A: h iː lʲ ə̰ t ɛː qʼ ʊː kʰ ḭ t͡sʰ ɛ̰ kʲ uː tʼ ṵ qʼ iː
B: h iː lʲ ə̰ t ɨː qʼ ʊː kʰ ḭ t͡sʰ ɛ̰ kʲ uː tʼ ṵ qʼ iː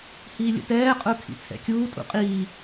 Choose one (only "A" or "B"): A